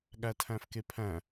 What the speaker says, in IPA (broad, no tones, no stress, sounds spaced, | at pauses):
ɠ æ tʰ æ̃ f k e pʰ æ̃